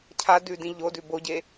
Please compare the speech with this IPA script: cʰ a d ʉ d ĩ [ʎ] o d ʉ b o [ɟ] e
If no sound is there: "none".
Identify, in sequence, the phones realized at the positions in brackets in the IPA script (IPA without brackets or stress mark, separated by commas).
ʎ, ɟ